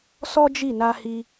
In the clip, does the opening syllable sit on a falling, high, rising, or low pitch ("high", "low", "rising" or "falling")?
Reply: high